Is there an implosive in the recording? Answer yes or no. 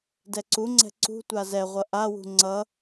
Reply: no